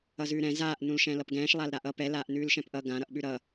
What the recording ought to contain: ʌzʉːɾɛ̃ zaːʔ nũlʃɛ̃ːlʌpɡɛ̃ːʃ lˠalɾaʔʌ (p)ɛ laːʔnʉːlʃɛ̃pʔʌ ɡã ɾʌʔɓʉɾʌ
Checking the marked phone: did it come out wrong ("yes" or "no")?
no